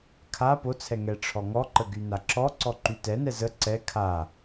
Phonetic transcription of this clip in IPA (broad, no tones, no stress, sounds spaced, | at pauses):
kʰ a p o t͡sʰ ɛ ŋ ɛ ʈ͡ʂʰ ɔ ŋ ɔ ǃ ə ɡ y n a ǁ ɔ ǀ ɔ ǃ y t ɛ n ɛ z ə ǀ ɛ kʰ a